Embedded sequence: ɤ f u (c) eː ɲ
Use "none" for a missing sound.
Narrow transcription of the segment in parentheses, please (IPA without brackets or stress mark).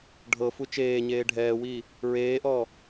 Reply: t͡ʃ